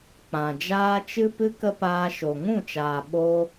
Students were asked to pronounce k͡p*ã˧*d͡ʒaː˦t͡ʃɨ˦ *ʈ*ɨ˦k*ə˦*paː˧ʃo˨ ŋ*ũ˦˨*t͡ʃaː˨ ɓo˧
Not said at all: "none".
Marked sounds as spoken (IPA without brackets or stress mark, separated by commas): ã˨, p, ə˦, ũ˦˨